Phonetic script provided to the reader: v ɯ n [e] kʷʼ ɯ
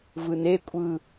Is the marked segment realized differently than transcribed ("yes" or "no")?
no